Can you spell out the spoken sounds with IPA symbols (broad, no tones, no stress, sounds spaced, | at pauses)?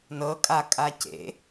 n ɤ kʼ a kʼ a c ḛ